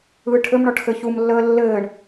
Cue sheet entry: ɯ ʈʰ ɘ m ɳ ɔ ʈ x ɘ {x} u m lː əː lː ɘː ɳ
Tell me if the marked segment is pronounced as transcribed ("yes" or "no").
no